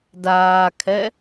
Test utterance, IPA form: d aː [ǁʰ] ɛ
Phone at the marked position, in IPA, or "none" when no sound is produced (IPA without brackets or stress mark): kʰ